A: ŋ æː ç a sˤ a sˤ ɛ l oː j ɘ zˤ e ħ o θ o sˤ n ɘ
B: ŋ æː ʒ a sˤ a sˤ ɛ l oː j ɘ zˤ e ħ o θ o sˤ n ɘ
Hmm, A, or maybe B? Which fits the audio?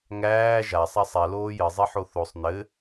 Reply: B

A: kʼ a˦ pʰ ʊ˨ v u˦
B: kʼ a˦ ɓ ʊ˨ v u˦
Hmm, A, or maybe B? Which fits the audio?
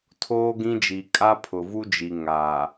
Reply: A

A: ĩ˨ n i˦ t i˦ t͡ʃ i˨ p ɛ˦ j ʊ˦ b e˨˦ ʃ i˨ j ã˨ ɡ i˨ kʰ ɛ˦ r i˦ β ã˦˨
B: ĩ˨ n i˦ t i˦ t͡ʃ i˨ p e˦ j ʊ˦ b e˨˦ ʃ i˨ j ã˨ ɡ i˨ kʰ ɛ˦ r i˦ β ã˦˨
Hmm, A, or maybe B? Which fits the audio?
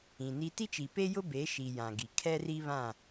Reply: B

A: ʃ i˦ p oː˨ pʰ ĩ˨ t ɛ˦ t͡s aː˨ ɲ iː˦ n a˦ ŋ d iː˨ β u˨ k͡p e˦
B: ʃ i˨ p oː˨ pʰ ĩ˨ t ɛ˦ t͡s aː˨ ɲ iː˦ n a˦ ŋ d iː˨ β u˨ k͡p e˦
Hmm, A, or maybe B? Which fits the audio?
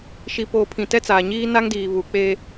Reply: B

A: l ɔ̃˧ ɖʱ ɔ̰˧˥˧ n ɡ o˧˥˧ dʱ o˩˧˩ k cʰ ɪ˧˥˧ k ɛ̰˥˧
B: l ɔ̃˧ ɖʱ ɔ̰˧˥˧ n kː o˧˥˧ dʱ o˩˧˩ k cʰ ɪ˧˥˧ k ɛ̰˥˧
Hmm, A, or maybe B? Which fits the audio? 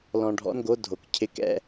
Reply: A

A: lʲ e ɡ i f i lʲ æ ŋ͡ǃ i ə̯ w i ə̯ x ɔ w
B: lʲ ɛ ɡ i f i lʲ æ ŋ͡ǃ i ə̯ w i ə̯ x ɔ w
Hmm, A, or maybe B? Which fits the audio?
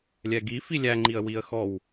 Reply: B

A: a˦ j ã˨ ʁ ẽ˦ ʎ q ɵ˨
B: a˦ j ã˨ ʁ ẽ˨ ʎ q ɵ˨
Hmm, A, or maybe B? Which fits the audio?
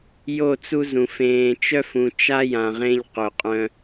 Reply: A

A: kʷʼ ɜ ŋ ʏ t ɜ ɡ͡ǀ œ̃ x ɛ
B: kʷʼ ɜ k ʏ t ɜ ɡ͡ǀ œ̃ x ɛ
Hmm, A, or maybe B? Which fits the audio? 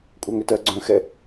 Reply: A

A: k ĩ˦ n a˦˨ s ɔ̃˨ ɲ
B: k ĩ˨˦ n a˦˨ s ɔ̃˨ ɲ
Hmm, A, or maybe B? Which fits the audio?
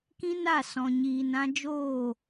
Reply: A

